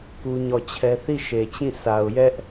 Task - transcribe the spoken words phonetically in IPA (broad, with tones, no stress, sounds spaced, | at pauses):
k u˦ ɲ ɔ˦˨ t͡ɕʰ ɛ˦ θ i˦˨ ʃ e˨ t͡ɕ ĩ˦˨ s a˨ ʊ̯ j ɛ˦ ʔ